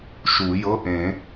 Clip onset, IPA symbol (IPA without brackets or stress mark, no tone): ʃ